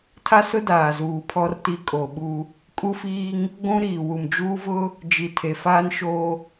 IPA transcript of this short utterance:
tʰ a˦ s ʊ˦ d aː˨ z uː˨ pʰ ɔ˦ r t i˦ kʼ o˨ ɓ u˦ | kʼ u˦ f iː˦ ŋ | ɡʷ ũ˦ ɾ iː˨ w u˨ m d͡ʒ uː˦ v ʊ˦ | d͡ʒ i˨ tʰ e˨ f aː˦ n ʃ o˦

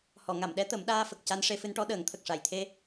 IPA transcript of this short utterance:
h ɔ˨˩˨ ŋ a˨˩˨ m ɗ ɛ˧˥ t̪ ə˨˩˦ m ɗ aː˧ f ə˨˩ k̚ c a˧ n ʂ e˧ f ɨ˧ n ʈ ɔ˧˥ ɗ əː˨˩˦ ŋ t̪ʰ ə˨˩ k̚ ʂ a˨˩ j t̪ʰ e˧

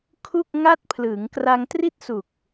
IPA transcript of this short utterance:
kʰ u˥˩ k̚ ŋ a˥˩ t̚ pʰ l ɯ˩˦ ŋ k r a˧ ŋ t r i˥˩ t̚ s u˨˩ k̚

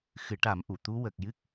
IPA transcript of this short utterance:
x ɨ˨˩˦ ʈ a˨˩˦ m ʔ u˨˩˨ t̪ u˧˥ w ə˨˩ k̚ j ɨ˦˥ k̚

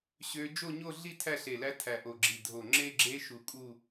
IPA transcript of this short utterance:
ɕ ø˦˥ d͡ʒ o˥˧ ɲ o˥˧ ɮ i˥˧ tʰ æ˥˧ ɬ e˧˩ l æ˦˥ tʰ æ˧˩ ʔ o˧˩ ɡ͡ǁ i˧˩ dʱ o˧˩ ŋ͡ǁ e˥˧ ɡ͡ǁ e˦˥ ʃ u˧˩ kʼ u˥˧

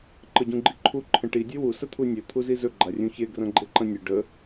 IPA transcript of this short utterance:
ǃ ə ɟ ũ ɡ͡ǃ i ǃʰ u ǃʰ ə̃ ʈ i dʲ e w u s ə t̪ʰ u nʲ ɵ t̪ʰ u z i z ɵ ɡ͡ǃ a rʲ ũ ç e ɡ r ɐ̃ ɡ͡ǃ e ǃ ɐ̃ nʲ ə ɖ ə

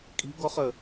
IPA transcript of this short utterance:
kʼ i̤ ɡ ɔ χ ə

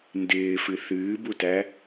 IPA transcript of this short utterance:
n d ɪː f ɨ θ ɨː b u t æ

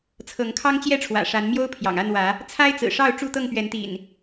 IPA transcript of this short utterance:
t͡sʰ ɤ˨˦ ŋ kʰ ɑ˦ ŋ t͡ɕ j ɛ˥˨ ʈ͡ʂʰ w ä̰˨˩ ʂ a˨˦ n m j o˦ ʊ̯ pʰ j ɑ̰˨˩ ŋ a˥˨ n w ä˨˦ | t͡sʰ a˦ ɪ̯ t͡s ɹ̩˨˩ ʂ ɑ˥˨ ʊ̯ ʈ͡ʂ u˥˨ t̪ ɤ˥˨ ŋ p ɥ ɛ˨˦ n t̪ ḭ˨˩ n

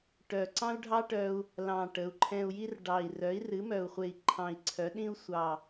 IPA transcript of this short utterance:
ʈ œ˨˩ ǀ ɑ̃˥ u̯ ɖʱ ɑ˥ ʈ œ˧ u̯ | l ɑ̃˨˩ ʈ ə˩˧ u̯ ǃʰ ɛ̃˧ u̯ j i˥ r ɖ ɑ˨˩ i̯ r œ˩˥ i̯ r ɨ˩˥ m œ˨˩ u̯ χʷ e˨˩ i̯ ǃʰ ɑ̃˨˩ i̯ ǀʰ œ˩˥ ɗ ĩ˥ u̯ sʷ ɑ˨˩

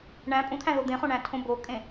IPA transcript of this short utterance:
ɳ æ̃ pʼ ũ t̪ʰ æ̃ ð o d̪ ẽ χ õ ɳ æ̃ tʰ õ b o kʼ ẽ

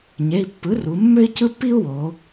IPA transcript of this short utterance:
ɲ e˩˧˩ i̯ pː ɯ˩˥ r u˩˧ mː ø˥ i̯ c ɯ˥ pː i˥ u̯ w o˩˧

